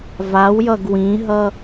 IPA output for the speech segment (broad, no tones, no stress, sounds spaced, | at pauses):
v a w j ʌ ɡ w ĩ ɦ ʌ